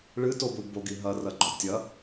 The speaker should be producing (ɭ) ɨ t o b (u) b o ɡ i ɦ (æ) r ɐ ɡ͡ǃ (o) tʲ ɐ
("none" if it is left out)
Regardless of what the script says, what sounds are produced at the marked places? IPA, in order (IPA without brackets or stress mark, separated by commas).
ɭ, u, ɐ, ɵ